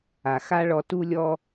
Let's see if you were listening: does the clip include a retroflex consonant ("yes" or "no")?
yes